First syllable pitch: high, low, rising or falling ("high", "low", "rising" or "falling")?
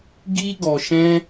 high